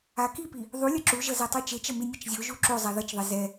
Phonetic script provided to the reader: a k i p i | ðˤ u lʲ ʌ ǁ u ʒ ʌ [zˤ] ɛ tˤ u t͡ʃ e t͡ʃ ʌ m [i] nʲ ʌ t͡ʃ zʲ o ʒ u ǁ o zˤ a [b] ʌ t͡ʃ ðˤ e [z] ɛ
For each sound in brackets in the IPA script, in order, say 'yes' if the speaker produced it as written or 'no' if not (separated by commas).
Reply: no, yes, no, yes